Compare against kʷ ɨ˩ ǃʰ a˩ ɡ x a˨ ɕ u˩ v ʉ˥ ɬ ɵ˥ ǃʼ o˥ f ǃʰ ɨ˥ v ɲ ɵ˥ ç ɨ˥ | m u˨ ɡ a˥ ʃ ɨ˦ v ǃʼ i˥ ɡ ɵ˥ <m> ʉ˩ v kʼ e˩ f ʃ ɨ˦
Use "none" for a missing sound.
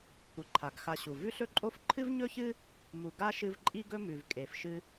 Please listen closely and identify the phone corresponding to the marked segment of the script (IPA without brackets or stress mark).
m